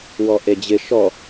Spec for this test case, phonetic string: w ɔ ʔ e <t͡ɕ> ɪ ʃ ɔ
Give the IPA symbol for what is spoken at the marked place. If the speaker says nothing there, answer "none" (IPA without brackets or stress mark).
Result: d͡ʑ